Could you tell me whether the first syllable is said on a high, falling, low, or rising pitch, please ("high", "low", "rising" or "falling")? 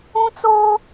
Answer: high